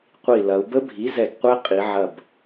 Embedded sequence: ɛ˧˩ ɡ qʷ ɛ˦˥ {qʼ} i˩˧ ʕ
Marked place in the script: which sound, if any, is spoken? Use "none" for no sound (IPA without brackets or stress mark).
qʼ